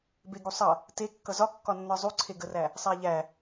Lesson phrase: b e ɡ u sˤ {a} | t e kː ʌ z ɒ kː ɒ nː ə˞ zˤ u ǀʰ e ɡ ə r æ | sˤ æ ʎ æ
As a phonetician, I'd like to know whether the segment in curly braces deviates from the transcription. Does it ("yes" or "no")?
yes